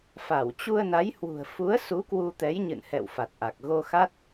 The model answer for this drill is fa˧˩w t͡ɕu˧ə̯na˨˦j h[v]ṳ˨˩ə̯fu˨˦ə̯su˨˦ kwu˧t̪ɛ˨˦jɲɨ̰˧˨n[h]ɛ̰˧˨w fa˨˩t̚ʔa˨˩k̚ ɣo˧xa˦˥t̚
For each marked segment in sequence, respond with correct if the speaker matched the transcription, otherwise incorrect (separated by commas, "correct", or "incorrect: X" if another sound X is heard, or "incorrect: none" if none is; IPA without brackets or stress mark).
incorrect: w, correct